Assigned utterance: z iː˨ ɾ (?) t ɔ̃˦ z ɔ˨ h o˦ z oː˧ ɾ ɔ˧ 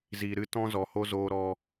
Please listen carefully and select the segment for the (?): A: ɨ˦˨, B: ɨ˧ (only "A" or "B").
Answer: A